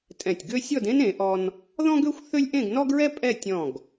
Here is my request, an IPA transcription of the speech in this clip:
tʼ ɛ̃˧˩ tʲ ɡ ø˥ sʲ ɔ˥˧ d ẽ˥ n ẽ˩˧ ʔ ɔ˧ n | ð ɔ̃˥ ɡ ø˥ xʷ θ ø˥ lʲ ʔ ẽ˥˧ ɡ n ɔ˥ ɡ ɹ ɛ˥ pʼ ɛ˥˧ tʲ ɔ̃˧˩ ɡ

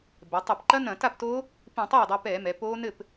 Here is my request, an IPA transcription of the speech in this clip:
b ɛ˩˧ tˤ i˧˩˧ p ǃ ɐ˦˥ n ɐ̃˧˩˧ t a˥˩ p t oː˦˥ | p ĩ˧˩˧ tˤ oː˥˩ dˤ ə˞˧ p ɛː˧˩˧ m ɛ˩˧ p oː˦˥ n ɘ˥˩ p

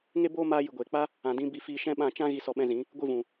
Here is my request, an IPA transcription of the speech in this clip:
ŋ e˦ b oː˦ m aː˧ j ɨ˨ ɡʷ eː˨ k͡p a˦ | ã˨ d ĩ˧ b i˧ f iː˧ ʃ ɛ̃˦ ɓ ã˦˨ t͡ʃ ã˦ ɣ i˧ s ɔ˧ ɓ ɛ̃˧ z ĩ˨˦ | ɡʷ ɨ˦˨ v ũ˨

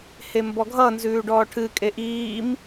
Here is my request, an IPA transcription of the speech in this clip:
h e m b ɔ ɡʱ ʌ n z ʉː ɖ ɔː ʈʰ ɨ kʼ e ʔ iː m

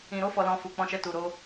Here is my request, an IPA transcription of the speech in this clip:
ĩ˨ ɾ o˧ f ɔ˨ l ɔ̃˨ f u˨ k͡p ɔ̃˧ ʃ ɛ˧ t u˨ ɾ o˧

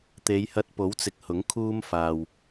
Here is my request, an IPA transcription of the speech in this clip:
t̪ e˨˧ j h ɐ˧ t̚ p o˨˥ w t͡s ɪ˨ k̚ h ʊ˨˥ ŋ kʰ uː˥ m f aː˧ w

